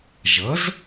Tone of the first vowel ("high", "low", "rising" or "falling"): rising